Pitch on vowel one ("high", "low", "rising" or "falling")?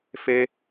high